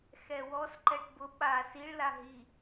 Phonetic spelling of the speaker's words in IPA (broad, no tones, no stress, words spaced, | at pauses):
xɛwɔs ǃɛʈbʊ ɓa siɭ laɦi